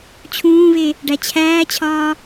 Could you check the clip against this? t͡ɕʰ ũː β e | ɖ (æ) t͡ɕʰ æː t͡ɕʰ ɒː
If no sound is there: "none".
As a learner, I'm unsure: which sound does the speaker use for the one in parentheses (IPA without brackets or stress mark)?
æ